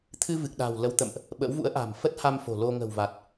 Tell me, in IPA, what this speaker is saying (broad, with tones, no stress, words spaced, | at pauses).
t̪ʰɨ˧ vɨ˨˩k̚ɗa̤ː˨˩wlə˨˦w t̪ə̰˧˨mʔ | ɓə̰˧˥wvṵ˧˥ə̯ ʔa̤˨˩mfə˦˥t̚ha˧m fo̤˨˩lo˧ ŋə̤˨˩wva˨˩t̚